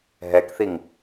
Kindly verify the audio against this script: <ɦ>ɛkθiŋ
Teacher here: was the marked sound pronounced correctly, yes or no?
yes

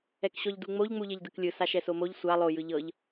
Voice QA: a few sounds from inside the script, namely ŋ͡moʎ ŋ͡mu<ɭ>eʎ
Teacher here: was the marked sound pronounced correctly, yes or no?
no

